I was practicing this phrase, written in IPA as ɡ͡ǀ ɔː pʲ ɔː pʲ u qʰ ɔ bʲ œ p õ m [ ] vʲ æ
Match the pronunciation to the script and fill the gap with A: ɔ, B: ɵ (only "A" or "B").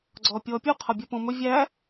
B